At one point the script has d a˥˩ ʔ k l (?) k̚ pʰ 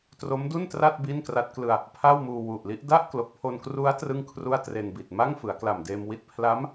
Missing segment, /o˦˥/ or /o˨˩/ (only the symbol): o˨˩